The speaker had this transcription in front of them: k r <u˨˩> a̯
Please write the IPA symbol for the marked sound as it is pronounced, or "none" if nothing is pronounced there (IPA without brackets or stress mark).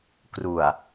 u˨˩